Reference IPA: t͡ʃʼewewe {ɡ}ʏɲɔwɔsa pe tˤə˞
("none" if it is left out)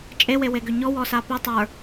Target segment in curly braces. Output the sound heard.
ɡ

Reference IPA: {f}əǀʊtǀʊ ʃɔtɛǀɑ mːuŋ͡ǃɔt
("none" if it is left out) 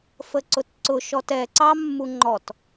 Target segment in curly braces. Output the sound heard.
f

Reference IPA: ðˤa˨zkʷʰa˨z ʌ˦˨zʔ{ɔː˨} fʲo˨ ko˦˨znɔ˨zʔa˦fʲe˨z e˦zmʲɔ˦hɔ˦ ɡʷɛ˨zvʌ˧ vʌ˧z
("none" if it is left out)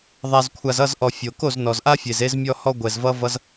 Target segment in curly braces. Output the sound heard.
ɔ˨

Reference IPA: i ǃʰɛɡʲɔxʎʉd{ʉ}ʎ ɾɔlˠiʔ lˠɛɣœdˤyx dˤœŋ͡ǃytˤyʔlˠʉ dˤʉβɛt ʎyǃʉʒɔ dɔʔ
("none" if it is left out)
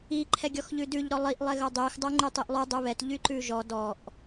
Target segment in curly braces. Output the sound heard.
ʉ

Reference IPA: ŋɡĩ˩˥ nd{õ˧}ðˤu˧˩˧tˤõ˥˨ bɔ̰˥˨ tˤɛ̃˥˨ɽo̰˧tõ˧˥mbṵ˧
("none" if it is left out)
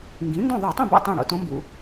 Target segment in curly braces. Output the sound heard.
õ˥˨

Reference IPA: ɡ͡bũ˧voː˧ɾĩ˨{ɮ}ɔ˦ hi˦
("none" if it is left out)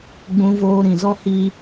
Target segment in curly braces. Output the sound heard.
z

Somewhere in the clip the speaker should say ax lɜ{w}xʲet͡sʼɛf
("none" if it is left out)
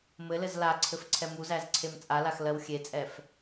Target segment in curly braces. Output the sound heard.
w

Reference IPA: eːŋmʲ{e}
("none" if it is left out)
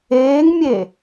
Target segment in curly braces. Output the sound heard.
e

